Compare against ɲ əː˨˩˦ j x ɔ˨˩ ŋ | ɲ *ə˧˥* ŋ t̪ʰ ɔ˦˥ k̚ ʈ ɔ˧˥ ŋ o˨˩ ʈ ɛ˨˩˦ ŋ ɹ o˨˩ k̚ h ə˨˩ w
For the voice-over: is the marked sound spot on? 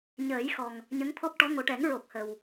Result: yes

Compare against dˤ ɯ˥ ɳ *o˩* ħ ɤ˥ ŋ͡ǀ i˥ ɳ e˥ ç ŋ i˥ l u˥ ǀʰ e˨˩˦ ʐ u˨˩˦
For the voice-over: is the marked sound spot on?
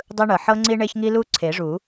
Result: no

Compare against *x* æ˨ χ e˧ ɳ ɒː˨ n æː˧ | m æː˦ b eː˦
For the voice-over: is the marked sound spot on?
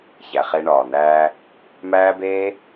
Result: no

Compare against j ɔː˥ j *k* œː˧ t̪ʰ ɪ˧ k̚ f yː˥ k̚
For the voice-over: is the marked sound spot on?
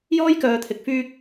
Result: yes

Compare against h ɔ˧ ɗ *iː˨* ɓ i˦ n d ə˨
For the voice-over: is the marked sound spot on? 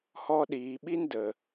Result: yes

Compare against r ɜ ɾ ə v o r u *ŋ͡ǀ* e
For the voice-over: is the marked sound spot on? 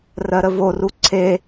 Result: no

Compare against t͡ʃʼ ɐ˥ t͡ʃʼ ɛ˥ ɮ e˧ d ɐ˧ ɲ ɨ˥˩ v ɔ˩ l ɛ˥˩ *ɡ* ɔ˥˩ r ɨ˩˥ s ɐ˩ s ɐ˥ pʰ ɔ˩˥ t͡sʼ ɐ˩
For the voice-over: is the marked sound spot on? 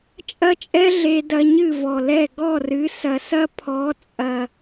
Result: yes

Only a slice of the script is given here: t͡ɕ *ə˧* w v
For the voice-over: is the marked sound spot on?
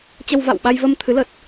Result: yes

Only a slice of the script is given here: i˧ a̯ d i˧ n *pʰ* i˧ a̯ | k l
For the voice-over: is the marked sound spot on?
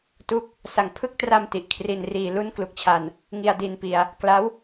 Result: no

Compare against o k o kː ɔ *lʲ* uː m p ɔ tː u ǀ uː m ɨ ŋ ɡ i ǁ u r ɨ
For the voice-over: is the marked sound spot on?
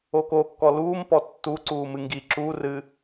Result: no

